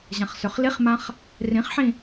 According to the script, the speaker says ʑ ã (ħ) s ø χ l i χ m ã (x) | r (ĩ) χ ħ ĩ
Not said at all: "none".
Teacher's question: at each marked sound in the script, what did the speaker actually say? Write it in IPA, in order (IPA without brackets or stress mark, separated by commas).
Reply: χ, χ, ĩ